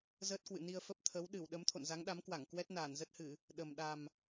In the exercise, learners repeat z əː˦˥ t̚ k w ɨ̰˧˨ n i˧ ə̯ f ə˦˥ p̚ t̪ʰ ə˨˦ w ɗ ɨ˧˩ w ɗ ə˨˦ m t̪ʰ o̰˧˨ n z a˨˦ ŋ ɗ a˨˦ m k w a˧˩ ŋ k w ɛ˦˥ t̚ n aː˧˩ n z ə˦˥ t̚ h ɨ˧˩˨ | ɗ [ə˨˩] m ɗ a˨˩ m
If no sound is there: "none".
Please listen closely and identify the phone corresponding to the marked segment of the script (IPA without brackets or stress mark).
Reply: ə˨˩